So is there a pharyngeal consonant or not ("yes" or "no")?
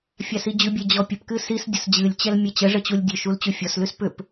no